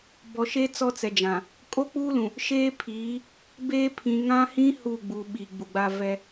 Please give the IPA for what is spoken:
b ɔ˨ ʃ e˦ t͡s ɔ˦ t͡s ɛ˨ d͡ʒ ã˨ | kʼ o˦ k͡p uː˦ l ũ˨ | ʃ eː˦ pʰ iː˨˦ | b eː˦ pʰ ĩ˨ ŋ ã˦ h ĩ˦ h u˦˨ ɡ͡b u˨ ɓ i˨ ɡ͡b u˨ ɡ͡b a˦ v ɛ˦

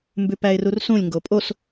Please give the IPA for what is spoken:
m b ʉ p æ ɪ̯ r u r s ũ lʲ ŋ ɡ o pʼ o s

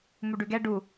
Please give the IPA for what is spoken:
m u ɖ ʉ ɡ ɛ ɖ u

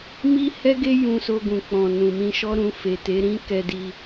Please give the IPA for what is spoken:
m i˦ h ɛ˦ ɡ e˦ j ũ˧ s o˧ ɡ ũ˨ k͡p ɔ̃˨ n ũ˨ m ĩ˧ ʃ ɔ˦ ɾ ũ˧ f e˨ t e˨˦ ɾ ĩ˦ k ɛ˧ d i˧

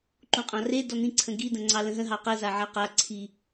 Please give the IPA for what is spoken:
ǃ ũ qʼ ɑ̃ r e d ɔ n ĩ ǀʰ ə̃ ɡ i d ə̃ ŋ͡ǀ ɑ l ə̃ ɦ ə̃ ɦ ɑ q ə z a ʕ a q a ǀʰ i

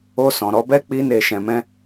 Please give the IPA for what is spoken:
o˧ s ɔ̃˨ ɾ ɔ˨˦ b ɛ˦ k͡p i˦ n e˧ ʃ ɛ̃˧ m ɛ̃˦

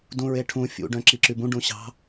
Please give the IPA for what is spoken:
d ũ ɹ e ʈʰ ũ fʲ ṵ ɖ œ̃ ǁ i ǁ y b ũ ɖ ũ ɕ ɑ̤

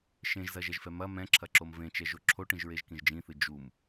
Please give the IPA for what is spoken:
ʃ ẽ ʒ z ɐ ʒ ɛ ʒ f ɛ m ɐ m ɛ̃ ǁʰ ɐ ǁ o m v ẽ t͡ʃ ɛ ʒ o ǁʰ o ʈ ĩ ʒ ɹ e ʒ k ĩ ʒ d͡ʒ ĩ θ ɨ d͡ʒ u m

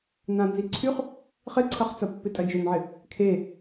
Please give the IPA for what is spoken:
n ã n z i ǀʰ y χ | χ ɪ ǀʰ ɐ χ t͡s ɐ pː ɪ tʼ ɐ d͡ʒ ø n ʕ ɪ | kʰ e

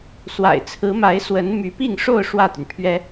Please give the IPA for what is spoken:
s w a̰˨˩ ɪ̯ t͡sʰ ɹ̩˧˥ m a˧˥ ɪ̯ s w ə˧˥ n m y˧˥ p i˥˧ ŋ ʂ o˥˧ ʊ̯ ʂ w ä˥˩ t̪ y˩ n pʰ ɥ ɛ˥

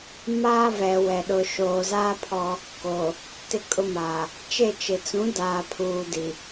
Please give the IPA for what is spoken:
m aː˦ v ɛ˨ w ɛ˨ ɗ ʊ˨ ʃ oː˨ z aː˦ pʰ ɔ˦ | k o˨ | t ɪ˦ kʼ ʊ˦ m aː˨ | t͡ʃ e˦˨ t͡ʃ ɪ˨ t͡s ũ˨˦ d aː˨ pʰ uː˨ d i˨

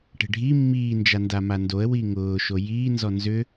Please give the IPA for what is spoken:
ʈ e̤ ɖʱ i mː iː n d͡ʒ a n d a m a n d o ə̯ w i ŋ ʊː ʃ o j iː n z ɔ n z ʏ

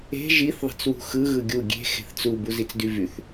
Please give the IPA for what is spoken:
e̤ ʒ i θ ðˤ e̤ t͡s w ṳ x ɯ ɣ ɯ ɡʲ u ɡʲ e̤ x e̤ θ t͡s u b u z i t͡s d y v y θ

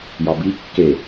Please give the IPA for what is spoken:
j ɒ b i kː e

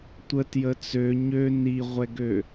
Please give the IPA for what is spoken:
tʷ ə t j ə t͡s ø ɲ ø n i ʁʷ ɛ ɡ ø

